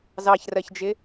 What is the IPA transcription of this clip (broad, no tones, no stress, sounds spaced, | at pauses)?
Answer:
z ɑ ç r ɜ ç d͡ʒ ɪ